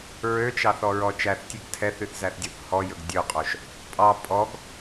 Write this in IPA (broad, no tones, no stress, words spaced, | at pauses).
ɹøt͡ʃɑθɔɹɔ t͡ʃæθtʲʉɡ tʰɛθyθzæθdʲɵθ hɔjɵɡ dʲɵqʼoʃ | pʼɑ pʼɔɡ